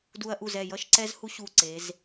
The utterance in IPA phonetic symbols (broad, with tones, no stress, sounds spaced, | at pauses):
d u˧ ɐ̯ ʔ u˧˩ z ɛ˧˩ j ʌ˥˧ ʃ ǀ ɛ˥ z h u˥ ɕ u˧˩ ǀ e˩˧ z